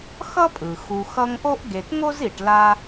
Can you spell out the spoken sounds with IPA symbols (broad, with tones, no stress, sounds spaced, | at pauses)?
x ʌ˥ pʼ ɯ˩ x u˨ x ʌ˦ ŋ ʔ o˥ ʔ ɡ e˨ t ŋ o˥ z i˨ ʈ l a˦